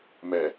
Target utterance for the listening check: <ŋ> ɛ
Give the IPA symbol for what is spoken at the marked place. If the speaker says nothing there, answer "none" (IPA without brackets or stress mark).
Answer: m